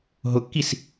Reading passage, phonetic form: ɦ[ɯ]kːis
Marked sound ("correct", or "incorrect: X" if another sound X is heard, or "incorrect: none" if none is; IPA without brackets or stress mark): incorrect: ʊ